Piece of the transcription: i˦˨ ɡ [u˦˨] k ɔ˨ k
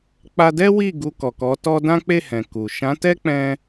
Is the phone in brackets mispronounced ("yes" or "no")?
yes